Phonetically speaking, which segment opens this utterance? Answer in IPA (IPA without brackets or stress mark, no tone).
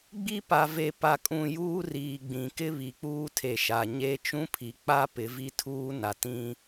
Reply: ɡ͡b